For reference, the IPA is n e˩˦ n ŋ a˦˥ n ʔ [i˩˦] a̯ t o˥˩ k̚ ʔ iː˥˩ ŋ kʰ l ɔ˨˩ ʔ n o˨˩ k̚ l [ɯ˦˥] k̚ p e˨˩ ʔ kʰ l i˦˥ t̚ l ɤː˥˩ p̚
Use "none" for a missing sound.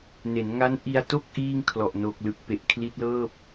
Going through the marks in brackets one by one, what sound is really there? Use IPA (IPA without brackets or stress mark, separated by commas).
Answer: i˧, ɯ˨˩